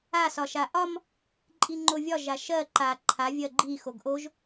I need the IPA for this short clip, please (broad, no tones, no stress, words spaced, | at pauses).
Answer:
a sɒʃaʔɒm | ǃʼiŋ͡ǃovʲɒ ʒaʃɜ ǃa ǃʰa vʲɜɡ͡ǃi xoɡʔoʒ